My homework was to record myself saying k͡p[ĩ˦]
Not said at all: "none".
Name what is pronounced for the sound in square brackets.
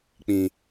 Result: ĩ˦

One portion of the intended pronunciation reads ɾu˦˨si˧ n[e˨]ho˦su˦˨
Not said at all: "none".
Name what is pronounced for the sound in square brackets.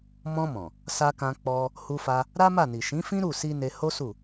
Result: e˧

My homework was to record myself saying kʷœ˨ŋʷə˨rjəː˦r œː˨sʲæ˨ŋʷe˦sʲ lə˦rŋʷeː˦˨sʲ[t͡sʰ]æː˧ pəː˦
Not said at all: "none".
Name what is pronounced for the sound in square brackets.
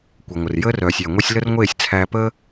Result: t͡sʰ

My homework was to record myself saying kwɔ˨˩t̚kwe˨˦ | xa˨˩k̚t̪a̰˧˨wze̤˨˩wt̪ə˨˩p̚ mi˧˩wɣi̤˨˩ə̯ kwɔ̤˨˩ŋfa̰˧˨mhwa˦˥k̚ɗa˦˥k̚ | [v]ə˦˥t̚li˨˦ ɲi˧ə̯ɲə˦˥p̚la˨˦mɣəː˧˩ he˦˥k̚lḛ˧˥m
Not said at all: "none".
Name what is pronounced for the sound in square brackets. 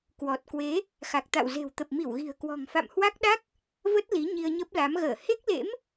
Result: v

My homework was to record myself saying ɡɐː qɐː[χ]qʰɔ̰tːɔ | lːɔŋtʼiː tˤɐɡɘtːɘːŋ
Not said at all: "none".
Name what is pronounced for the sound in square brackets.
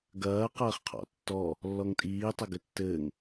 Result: χ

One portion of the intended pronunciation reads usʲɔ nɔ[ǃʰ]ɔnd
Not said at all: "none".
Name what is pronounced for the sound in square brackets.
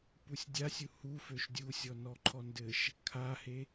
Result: ǃʰ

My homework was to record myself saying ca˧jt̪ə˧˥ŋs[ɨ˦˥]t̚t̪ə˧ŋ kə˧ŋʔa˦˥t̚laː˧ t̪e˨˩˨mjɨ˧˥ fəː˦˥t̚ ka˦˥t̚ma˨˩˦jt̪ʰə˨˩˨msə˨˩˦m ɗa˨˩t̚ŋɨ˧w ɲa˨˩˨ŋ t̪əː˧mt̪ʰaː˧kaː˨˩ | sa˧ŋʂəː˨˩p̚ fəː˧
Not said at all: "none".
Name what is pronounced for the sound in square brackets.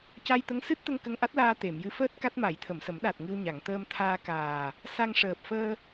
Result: ɨ˦˥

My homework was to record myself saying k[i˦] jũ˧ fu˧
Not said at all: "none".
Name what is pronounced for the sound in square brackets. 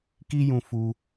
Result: i˦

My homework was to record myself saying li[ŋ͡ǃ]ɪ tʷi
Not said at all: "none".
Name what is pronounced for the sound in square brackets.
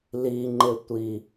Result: ŋ͡ǃ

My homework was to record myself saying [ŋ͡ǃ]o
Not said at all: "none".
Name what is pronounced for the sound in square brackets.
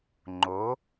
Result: ŋ͡ǃ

